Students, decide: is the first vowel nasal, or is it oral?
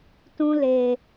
nasal